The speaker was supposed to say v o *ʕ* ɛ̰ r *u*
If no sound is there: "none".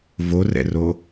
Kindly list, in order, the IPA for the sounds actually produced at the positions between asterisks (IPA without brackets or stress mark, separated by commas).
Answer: r, o